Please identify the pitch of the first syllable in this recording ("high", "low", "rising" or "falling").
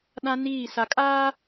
high